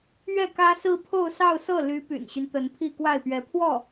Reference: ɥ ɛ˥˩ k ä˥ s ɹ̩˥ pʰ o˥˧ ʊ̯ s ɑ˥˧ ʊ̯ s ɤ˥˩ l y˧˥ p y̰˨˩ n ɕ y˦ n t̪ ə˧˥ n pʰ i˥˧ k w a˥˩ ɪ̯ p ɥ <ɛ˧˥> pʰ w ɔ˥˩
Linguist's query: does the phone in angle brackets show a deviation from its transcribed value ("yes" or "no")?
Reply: no